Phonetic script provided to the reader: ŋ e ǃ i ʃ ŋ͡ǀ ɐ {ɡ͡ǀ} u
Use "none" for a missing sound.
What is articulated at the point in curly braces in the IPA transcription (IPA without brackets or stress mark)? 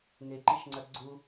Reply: ɡ͡ǀ